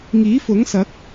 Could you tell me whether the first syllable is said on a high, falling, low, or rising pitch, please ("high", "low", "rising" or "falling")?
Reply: rising